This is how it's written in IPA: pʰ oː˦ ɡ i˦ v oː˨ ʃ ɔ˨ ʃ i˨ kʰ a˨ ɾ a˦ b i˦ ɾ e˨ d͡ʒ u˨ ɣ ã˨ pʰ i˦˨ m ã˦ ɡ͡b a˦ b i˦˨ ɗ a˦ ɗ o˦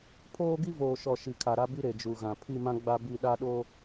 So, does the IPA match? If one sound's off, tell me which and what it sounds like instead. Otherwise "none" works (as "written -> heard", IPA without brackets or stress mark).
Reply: none